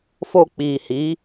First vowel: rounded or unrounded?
rounded